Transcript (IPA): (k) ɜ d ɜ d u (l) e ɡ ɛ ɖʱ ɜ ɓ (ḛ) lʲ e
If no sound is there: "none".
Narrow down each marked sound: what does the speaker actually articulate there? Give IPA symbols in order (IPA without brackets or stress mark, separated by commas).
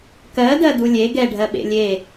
k, lʲ, ḛ